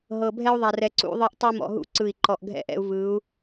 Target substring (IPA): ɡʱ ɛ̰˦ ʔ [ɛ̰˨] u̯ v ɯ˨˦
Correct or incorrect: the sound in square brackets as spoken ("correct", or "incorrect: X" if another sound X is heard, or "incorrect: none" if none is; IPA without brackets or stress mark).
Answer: incorrect: ɛ̰˦